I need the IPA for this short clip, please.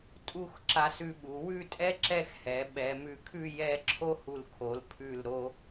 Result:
tʼ u˥˧ x ǁ a˧ s ʉ˧ ɓ u˩˧ w ʉ˥˧ tʼ ɛ˥ ǁ ɛ˥˧ x h ɛ˩˧ ɓ ɛ˩˧ m ʉ˧˩ kʰ ʉ˥˧ j ɛ˥˧ ǁʰ o˥ h u˧˩ l kʰ o˩˧ l pʰ ʉ˧˩ l ɾ o˧

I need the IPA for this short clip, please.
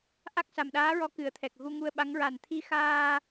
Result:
ʔ a˦˥ k̚ s a˨˩ m ɗ aː˧˥ ɹ ɔ˧˥ k ɨ˨˩˦ ə̯ t̪ʰ ɛ˨˩ k̚ ɣ u˧ ŋ u˧ ə̯ ɓ a˧˥ ŋ ɹ a˨˩ n t̪ʰ i˧ x aː˧

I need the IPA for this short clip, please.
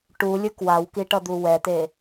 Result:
ʈ u lʲ ɯ k w a w k i ʈ ʌ d̪ u w ɛ t̪ e

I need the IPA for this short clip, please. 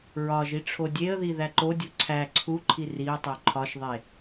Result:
ɹ ɒ ʒ i ʈ͡ʂʰ o dʲ e ə̯ ð i ð æ ǃ o dʲ u ǀʰ æ ǀʰ u ǃʰ i r i ʊ̯ tˤ o ǃʰ ɒ ʃ ðˤ e

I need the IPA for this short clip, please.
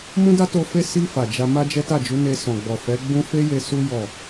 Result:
m ũ˦ d a˦ t o˧ f e˦ s i˧ f a˨ d͡ʒ a˧ m a˦ d͡ʒ ɛ˦ t a˦˨ d͡ʒ u˨˦ n e˧ s ɔ̃˨ ɡ͡b ɔ˨ f ɛ˨˦ ɡ͡b ũ˦ f e˦ j e˧ s u˦ j ɔ˦˨

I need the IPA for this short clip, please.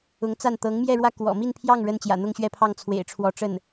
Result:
ʊ˧˥ ŋ t͡s a˥˩ n t̪ ɤ˧˥ ŋ m j ɛ˥˧ ɻ w ä˥˩ k w ɔ̰˨˩ m i˥˧ n pʰ j ɑ˥˩ ŋ ɻ ə˥ n t͡ɕ j ä̰˨˩ n̪ ʊ˥˧ ŋ ɕ ɥ ɛ˥˧ pʰ ɑ˥˩ ŋ t͡sʰ w ḛ˨˩ ɪ̯ ʈ͡ʂʰ w ɔ˧˥ ʈ͡ʂ ə˥˩ n

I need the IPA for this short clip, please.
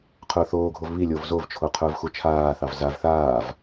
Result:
qʰ ʊː θ oː ɡʱ o v β i lʲ o v z o v t͡ʃʰ o qʰ ʊː v x u t͡ʃʰ aː θ ɑ v z a v θ aː v

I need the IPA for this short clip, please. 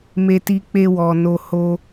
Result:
m e˦ t i˦ k͡p e˦ w ɔ˧ n o˦ h o˦

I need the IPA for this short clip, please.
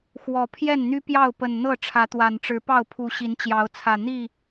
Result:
x w ɔ˨˦ pʰ j ɛ˥˨ n n̪ y˦ p j ɑ˥˨ ʊ̯ p ə˨˩ n n̪ ɤ˥˨ ʈ͡ʂʰ ä˨˦ t̪ w a˨˩ n ʈ͡ʂ ɻ̩˨˦ p ɑ˥˨ ʊ̯ pʰ u˨˦ ɕ i˨˦ n t͡ɕ j ɑ˨˦ ʊ̯ t͡sʰ ä˨˩ n̪ i˥˨

